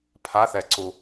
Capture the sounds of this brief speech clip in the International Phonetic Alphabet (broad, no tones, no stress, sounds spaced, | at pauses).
pʰ a θ ɛ ǀ u